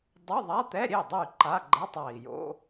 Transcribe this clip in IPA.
dˤ ɨ˧˥˧ ðˤ a˧˥˧ t̪ ɛ˧˥˧ ɾʲ e˥˩ dˤ ɨ˥˩ y̯ ǃ a˧˥˧ ɡ͡ǃ ɛ˧˥˧ tˤ a˨˩ i̯ j o̰˧˥˧

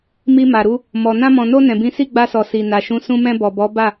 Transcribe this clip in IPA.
m i˧ m a˨ ɾ u˧ | m ɔ˨ n ã˧ m ɔ̃˨ n o˧ n ɛ̃˨ b ĩ˨˦ s i˦˨ ɡ͡b a˧ s ɔ˨ s i˨ n a˨ ʃ ũ˨˦ s ũ˧ m ɛ̃˧ b ɔ˨ b ɔ˨˦ b a˦˨

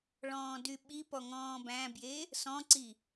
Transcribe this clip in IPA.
ɭ ɔ̃ː d y ɓ i p ɔ ŋ ɔ̃ː b æ̃ b j e | s ɔ̃ ǀ i

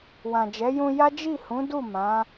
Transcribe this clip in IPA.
w ã˨ d͡ʒ ɛ˨˦ j ũ˧ j a˦ d͡ʒ i˦˨ h ũ˨˦ d u˦˨ m ã˨˦

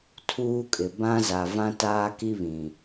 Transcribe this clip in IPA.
tʰ uː˦ kʼ ɪ˨ b ã˦ z a˨ v ã˦ t aː˦ k i˦ β ĩ˨

